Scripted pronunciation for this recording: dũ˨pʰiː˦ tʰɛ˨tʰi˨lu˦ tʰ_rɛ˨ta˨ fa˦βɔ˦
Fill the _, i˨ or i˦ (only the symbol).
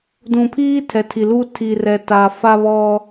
i˨